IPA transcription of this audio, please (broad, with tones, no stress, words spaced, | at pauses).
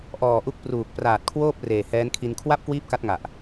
ʔɔː˨˩ ʔu˦˥k̚pruː˨˩k̚ praː˨˩t̚kʰwoː˥˩p̚ reː˨˩hɛː˦˥nkʰi˧n kʰwa˥˩p̚ kwiː˥˩p̚ka˦˥t̚ŋa˨˩ʔ